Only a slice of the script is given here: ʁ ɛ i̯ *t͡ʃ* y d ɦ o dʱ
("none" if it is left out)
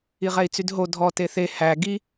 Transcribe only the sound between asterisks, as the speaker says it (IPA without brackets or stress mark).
t͡s